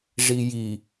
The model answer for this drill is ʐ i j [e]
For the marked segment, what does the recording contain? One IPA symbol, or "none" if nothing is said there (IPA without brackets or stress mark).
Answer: i